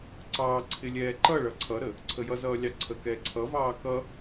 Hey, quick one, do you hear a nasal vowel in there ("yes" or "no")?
no